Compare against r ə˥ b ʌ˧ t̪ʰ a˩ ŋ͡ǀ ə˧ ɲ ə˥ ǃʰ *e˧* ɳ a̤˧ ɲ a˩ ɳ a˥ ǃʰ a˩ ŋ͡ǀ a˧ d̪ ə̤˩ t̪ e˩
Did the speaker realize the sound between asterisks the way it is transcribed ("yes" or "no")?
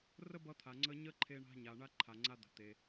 yes